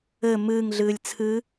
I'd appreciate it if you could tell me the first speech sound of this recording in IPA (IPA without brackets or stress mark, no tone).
ɘ